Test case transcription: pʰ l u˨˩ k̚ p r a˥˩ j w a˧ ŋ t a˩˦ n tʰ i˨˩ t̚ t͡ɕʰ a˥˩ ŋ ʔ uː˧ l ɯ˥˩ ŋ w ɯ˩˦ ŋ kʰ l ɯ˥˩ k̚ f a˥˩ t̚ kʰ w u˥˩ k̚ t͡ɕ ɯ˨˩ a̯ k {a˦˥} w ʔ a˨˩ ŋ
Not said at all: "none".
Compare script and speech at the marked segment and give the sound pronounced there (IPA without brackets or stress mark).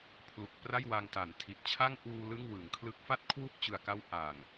a˦˥